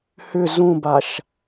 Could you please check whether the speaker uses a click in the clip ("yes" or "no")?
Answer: no